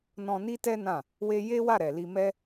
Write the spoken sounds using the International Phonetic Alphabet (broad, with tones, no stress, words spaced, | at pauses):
nɔ̃˧ni˦tɛ˦nã˦˨ | we˦ je˦wa˦˨ɾɛ˨li˧ mɛ˦